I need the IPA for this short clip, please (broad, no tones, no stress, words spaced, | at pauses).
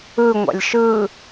ɯ ŋʷa̰lʲʃɯː